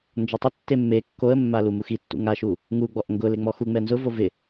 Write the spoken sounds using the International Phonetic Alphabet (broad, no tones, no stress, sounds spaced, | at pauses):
n d͡ʒ ɔ tˤ ʊ tː e mː e kː o ə̯ mː a l u m u x i tː ṵ ŋ a ʃ u | ŋ u ɡ͡b ɔ ʔ ŋ ɡ ʊ l e ŋ͡m ɔ x u ŋ͡m ɛ n z ʊ v o v ɪ